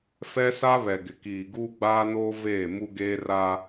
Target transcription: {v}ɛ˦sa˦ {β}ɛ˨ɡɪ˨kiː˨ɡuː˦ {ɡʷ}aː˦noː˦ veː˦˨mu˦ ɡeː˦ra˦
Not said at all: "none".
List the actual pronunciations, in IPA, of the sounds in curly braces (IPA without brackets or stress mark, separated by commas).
f, β, ɡ͡b